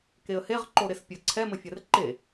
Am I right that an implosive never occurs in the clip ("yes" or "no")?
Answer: yes